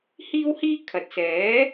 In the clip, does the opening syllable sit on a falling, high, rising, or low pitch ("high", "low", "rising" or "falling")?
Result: high